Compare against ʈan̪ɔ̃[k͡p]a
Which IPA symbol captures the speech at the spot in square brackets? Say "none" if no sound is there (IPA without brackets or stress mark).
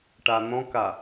k